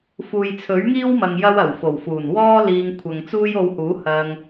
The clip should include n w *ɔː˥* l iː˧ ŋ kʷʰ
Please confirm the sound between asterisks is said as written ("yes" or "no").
yes